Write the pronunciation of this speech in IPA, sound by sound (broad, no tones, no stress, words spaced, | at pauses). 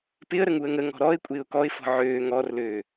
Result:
pɪə̯ɾə ŋuə̯ŋəŋɔ̤ ɾɔɪ̯ kʷʼɪːʊ̯kɔɪ̯fɔ̤ ʕøː ŋɔrløː